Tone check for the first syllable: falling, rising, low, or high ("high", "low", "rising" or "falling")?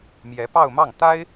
rising